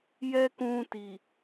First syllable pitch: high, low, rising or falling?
high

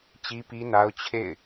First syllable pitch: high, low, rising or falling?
high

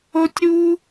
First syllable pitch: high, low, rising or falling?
high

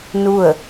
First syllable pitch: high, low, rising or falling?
falling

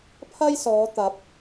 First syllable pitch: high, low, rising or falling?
high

